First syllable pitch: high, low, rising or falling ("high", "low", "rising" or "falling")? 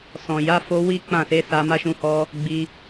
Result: low